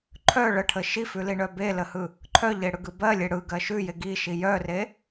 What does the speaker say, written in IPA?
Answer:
ǃʰ œ ɭ ə ʈʰ ə ʃ i f ʉ l i ɳ œ b e l ə h ɯ | ǃʰ œ ʎ e ɽ ɯ ɡ ɯ b ɜ lʲ e ɽ ɯ ɡ ɜ ʃ ʉ j e ɡ i ʃ i j œ r e

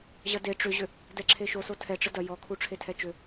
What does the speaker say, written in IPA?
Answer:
ʑ ɐ d e ʈ͡ʂ ʏ ʑ ʏ | d ɛ ǁʰ e ʃ o s o tʰ ɛ ʈ͡ʂ ə d ɐ j ɔ kʰ u ʈ͡ʂʰ e tʰ ɛ t͡ʃ ʏ

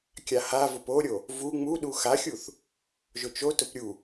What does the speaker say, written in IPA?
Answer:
kʲ a h a v ʊ p o ɾʲ o | v u ŋ͡m u ɗ u x a xʲ u θ | ʒ ʊ t͡ʃ o t ʊ p ɾʲ u

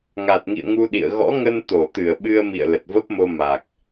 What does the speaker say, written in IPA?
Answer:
ŋ a˨˩ t̚ ŋ ḭ˧˨ ə̯ ŋ u˧ ɗ ḭ˧˨ ə̯ ɣ ɔ̰˧˥ ŋ ə˧ n t̪ o˧˩ t̪ ɨ˧˩ ə̯ ɓ ɨ˧ ə̯ m ḭ˧˨ ə̯ l ə˨˩ t̚ v ə˦˥ p̚ m o˧ m a˨˩ k̚

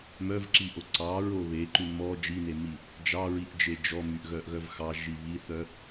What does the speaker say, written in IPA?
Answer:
m œ v ǁ i ʔ o ǀ ɑ ɹ o β e ǃ ʉ m ɔ d͡ʒ i n e m i | d͡ʒ ɑ ɹ i ʔ d͡ʒ e d͡ʒ ɔ m y ʔ ɣ œ ʔ ɣ œ v x ɑ ʒ i β i θ œ

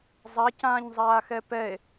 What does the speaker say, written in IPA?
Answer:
zˤ a c ãː ɲ zˤ aː x ɛ p ɛ e̯

